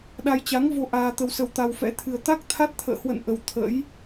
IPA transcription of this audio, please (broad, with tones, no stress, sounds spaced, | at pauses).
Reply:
ɗ a˧ j t͡ɕ a˨˦ ŋ v o˧ ʔ aː˧ t̪ ə˧ w s ə˧ w t̪ a˧ w f ɛ̰˧˥ t̪ʰ ɨ˧ ə̯ t̪ a˦˥ k̚ t̪ʰ a˦˥ t̚ t̪ʰ ə̰ː˧˨ h w ə̰˧˨ n ʔ ə˧ w t̪ʰ ə̰˧˥ j